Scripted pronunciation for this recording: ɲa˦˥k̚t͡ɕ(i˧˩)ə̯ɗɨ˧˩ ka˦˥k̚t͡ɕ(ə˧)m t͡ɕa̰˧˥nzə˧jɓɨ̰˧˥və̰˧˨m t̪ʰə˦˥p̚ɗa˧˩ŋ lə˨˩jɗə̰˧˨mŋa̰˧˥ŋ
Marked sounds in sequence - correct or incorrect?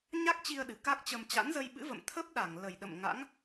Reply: incorrect: i˧, correct

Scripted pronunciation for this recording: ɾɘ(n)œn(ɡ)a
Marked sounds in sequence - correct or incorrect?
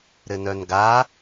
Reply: correct, correct

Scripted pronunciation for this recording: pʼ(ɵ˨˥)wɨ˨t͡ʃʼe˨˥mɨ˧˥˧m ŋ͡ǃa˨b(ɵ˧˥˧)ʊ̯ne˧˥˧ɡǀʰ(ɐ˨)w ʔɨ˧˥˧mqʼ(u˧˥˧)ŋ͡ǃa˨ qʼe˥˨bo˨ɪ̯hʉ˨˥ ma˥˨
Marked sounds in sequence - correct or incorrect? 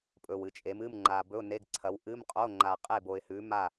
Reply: incorrect: ɵ˨, correct, incorrect: ɐ˨˥, incorrect: o˧˥˧

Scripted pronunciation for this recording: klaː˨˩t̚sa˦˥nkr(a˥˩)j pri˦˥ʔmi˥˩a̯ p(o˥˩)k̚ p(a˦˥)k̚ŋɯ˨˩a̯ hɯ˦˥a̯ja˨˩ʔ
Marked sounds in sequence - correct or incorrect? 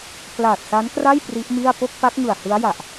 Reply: correct, correct, correct

